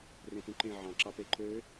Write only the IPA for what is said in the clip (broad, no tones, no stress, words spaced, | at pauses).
rẽpũǃẽ ʕɑ̃ǁɑpe ǃø